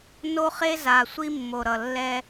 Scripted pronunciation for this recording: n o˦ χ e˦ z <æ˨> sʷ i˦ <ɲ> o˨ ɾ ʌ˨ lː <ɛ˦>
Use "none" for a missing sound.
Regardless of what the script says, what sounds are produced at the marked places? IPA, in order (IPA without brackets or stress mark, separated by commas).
a˨, mː, ɛ˦